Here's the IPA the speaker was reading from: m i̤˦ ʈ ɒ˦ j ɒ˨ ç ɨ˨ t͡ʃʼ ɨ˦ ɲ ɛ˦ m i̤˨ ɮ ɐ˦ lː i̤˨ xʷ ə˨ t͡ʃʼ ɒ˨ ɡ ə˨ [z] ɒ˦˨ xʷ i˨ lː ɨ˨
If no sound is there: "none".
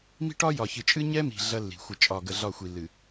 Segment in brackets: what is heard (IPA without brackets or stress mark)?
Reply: ɮ